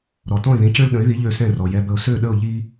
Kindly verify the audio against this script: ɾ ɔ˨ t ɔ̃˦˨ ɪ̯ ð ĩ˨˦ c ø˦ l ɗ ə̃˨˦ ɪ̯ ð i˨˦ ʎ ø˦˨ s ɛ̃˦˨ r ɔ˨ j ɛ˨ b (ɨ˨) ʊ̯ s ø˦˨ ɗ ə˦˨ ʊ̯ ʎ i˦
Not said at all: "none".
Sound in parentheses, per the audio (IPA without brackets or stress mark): ə˨